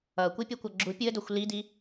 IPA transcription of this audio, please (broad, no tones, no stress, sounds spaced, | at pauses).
ʌ kʷ i pʲ e kʷ ʌ ɡ͡ǁ u pʲ u ə̯ d o xʷ l i d i